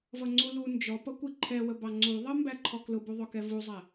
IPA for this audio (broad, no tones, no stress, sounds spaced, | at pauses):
v ʌ ŋ͡ǀ u l u n d͡ʒ ɔ p ʌ kʷ i ǃʰ ɛ w ə b ɑ ŋ͡ǀ u ðˤ ʌ m b æ ǃʰ ɔ k l ʊ b u ðˤ ʊ k ɛ v u zˤ æ